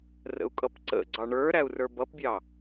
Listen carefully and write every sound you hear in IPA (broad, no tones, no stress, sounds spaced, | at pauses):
r ə̰ u̯ kʼ ʌ p ǀ ə̰ ɡ͡ǀ ɑ ɳ ə˞ ɾ æ u̯ r ə˞ b ʌ p bʲ ɑ